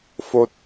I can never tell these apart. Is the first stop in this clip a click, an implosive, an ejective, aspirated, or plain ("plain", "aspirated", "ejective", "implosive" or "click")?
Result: plain